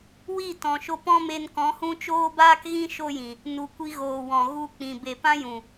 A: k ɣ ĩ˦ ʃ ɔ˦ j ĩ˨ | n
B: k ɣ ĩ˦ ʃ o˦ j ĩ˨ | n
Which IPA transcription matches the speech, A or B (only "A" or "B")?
B